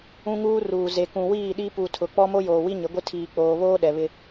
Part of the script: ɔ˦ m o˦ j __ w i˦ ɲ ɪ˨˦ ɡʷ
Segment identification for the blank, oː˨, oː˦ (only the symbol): oː˨